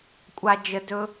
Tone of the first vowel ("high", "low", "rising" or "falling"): low